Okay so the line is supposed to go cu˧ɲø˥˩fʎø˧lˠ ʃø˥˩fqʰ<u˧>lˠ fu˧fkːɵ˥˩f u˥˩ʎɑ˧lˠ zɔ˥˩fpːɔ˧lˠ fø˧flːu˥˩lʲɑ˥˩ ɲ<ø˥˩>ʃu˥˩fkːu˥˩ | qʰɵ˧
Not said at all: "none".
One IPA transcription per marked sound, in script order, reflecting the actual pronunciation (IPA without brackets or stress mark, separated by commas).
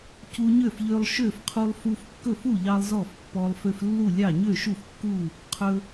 u˧, ø˥˩